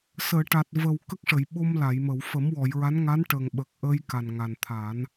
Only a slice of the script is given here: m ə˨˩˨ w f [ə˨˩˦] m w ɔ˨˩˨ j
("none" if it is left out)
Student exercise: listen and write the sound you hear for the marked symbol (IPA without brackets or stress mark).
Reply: ə˨˩˦